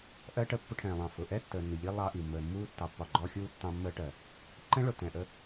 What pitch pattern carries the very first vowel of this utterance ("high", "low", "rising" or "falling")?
high